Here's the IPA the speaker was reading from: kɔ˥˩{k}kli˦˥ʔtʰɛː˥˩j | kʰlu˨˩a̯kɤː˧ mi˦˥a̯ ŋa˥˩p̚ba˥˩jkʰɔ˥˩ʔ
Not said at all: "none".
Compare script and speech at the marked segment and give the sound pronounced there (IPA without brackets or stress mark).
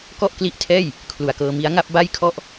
ʔ